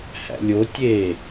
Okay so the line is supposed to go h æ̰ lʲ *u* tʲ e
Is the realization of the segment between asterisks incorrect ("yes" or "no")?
yes